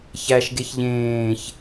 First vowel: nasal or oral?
oral